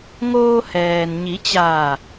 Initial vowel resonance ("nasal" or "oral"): oral